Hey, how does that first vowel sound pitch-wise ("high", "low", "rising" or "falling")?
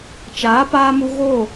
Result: rising